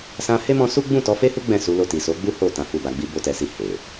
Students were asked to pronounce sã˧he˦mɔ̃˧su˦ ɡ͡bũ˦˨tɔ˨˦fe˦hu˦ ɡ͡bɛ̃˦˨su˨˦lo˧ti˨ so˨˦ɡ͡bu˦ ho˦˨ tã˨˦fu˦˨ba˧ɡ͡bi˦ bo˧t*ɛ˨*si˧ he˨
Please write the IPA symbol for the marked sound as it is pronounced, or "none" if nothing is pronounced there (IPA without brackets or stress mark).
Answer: ɛ˨